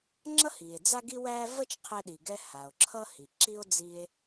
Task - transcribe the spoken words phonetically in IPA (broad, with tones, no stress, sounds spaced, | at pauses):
ŋ͡ǁ ʌ˥ h i˩ e̯ d͡z a˥ ɡ i˥ w æ˥ v ə˥ t͡ʃ qʰ ɛ˧ ɗ i˩ ɡ ɛ˧ h a˩ o̯ ǁʰ ʌ˥ h i˩ ǁ i˥ o̯ d͡z i˧ e̯